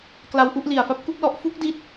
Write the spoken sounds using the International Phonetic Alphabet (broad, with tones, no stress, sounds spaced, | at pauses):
k l a˧ w ʔ u˥˩ ʔ l i˨˩ a̯ f a˦˥ p̚ k u˥˩ k̚ l ɔ˦˥ ʔ f u˦˥ k̚ d i˦˥ t̚